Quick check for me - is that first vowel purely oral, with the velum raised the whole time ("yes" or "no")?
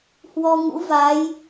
yes